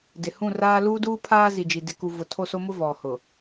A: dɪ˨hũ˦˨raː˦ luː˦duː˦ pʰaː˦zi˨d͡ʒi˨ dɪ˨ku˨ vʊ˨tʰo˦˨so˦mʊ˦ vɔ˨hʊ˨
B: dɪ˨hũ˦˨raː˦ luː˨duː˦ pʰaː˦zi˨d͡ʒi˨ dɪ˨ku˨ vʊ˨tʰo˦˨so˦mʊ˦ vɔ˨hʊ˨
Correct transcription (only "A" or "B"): A